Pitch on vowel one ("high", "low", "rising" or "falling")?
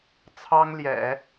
high